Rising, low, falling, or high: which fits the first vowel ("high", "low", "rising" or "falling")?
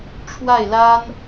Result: falling